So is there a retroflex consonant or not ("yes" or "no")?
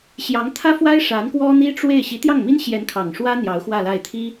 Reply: yes